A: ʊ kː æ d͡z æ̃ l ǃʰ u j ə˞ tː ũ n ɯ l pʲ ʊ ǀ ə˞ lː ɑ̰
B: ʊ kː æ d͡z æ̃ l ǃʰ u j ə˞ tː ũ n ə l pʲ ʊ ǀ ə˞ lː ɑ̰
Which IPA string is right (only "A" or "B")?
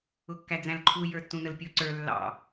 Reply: B